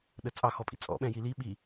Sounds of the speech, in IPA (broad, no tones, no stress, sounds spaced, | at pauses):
ɗ ə t͡sʼ ɑ x ɔ pʼ ḭ t͡sʼ ɔ̰ ɓ ɛ̃ j i l i ɓ i